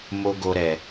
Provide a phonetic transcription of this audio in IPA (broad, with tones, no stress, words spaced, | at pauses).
mo˦ɡo˧ɾɛ˨